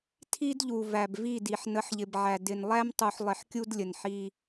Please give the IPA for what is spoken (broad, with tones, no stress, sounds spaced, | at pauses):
tʰ i˦ d ʎ u˨ v æ˨ b v i˦˨ d i˨ ħ n ə˨˦ ħ ʎ ɪ˨ b ʕ æ˨ d ɪ˨ n lˠ æ˦ m tˤ u˨ ħ lˠ ɪ˨ ħ kʲ u˦ d lʲ ə˨ n ħ i˦